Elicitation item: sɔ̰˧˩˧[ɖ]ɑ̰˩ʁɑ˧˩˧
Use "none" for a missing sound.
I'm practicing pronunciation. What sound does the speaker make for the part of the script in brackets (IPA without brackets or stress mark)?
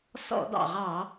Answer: d